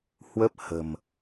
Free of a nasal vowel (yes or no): yes